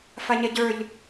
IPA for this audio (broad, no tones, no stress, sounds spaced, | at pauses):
f a ɲ ɛ ɟ ə˞ ʎ